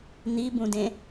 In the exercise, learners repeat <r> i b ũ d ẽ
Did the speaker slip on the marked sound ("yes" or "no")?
yes